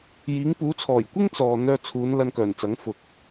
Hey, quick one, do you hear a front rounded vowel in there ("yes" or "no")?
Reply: yes